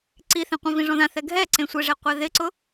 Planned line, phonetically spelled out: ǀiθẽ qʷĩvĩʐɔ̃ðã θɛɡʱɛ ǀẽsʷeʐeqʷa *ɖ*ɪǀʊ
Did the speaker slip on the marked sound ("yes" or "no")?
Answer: yes